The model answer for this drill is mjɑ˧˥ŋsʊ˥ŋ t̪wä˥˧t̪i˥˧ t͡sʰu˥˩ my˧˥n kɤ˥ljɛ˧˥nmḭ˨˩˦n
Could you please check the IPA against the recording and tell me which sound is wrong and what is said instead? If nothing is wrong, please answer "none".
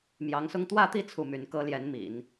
none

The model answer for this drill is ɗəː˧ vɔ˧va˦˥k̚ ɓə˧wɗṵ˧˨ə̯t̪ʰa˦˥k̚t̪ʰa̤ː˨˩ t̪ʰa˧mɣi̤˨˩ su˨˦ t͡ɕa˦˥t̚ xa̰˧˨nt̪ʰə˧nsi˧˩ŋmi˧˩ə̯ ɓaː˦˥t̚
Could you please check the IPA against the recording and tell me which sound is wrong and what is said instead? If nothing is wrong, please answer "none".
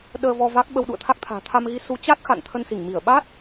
i̤˨˩ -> i˧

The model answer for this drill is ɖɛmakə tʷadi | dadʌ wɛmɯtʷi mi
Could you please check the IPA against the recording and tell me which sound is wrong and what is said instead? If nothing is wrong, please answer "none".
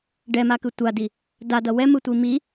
ə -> ɯ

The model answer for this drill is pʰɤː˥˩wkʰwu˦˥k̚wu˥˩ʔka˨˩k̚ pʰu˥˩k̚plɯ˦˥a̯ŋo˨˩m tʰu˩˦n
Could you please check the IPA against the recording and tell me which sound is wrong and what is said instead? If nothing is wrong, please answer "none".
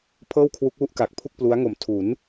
ɯ˦˥ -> u˦˥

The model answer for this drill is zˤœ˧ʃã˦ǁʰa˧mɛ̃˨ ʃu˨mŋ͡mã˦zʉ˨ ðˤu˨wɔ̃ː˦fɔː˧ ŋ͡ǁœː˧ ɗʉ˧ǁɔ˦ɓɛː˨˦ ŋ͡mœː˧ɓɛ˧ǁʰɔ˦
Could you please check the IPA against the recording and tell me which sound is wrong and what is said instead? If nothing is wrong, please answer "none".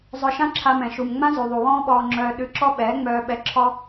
f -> ɓ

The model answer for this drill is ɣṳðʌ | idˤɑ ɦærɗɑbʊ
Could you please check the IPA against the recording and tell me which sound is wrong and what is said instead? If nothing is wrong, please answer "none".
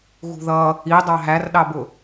none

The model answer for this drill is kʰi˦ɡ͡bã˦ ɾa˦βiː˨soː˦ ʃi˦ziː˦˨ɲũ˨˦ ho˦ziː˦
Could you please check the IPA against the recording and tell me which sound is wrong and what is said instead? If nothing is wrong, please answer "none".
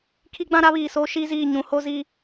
none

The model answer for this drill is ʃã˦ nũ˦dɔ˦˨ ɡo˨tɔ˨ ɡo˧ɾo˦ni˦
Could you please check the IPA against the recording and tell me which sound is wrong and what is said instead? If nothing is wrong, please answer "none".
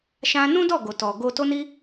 ɾ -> t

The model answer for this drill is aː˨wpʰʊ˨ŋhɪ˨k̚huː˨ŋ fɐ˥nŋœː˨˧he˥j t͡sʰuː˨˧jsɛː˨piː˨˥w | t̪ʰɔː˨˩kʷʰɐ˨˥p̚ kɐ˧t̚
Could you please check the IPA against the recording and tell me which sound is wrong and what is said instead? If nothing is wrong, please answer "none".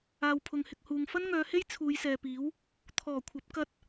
none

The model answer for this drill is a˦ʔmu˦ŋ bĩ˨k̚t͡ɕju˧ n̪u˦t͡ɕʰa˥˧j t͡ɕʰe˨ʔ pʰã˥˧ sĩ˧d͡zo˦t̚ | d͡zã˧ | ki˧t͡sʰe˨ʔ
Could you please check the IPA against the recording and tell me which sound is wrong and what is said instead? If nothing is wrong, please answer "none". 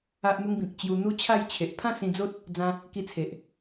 none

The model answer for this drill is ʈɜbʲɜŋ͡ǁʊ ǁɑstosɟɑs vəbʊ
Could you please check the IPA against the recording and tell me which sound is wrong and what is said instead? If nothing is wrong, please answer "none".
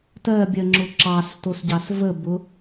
ʈ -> t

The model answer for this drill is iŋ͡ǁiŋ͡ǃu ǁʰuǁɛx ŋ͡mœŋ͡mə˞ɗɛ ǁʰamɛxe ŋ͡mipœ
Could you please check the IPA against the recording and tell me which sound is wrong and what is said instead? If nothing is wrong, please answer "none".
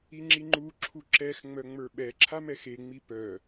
ɗ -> ɓ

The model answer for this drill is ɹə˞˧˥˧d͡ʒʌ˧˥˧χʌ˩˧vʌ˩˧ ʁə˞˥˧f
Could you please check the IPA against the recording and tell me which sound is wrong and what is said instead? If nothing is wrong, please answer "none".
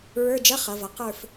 ʁ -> q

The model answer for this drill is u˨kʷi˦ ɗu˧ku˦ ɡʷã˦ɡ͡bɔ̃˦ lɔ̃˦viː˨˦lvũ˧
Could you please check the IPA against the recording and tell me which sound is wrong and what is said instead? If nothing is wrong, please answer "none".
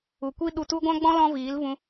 k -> t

